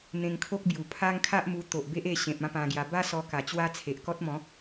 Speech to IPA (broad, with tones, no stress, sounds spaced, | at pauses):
n̪ ẽ˧ ŋ kʰ o˦ k̚ b j u˨˩ pʰ a˦ ŋ kʰ a˦ ʔ m u˧ t̪ o˨ ʔ b e˦ ʔ e˧ ɕ ẽ˨ p̚ ã˦ p ã˧ ɡ j a˧ b a˦ s ɔ˧ k a˨˩ t͡ɕ w a˦ t͡sʰ e˨ ʔ k ɔ˦ t̚ m ɔ̃˨˦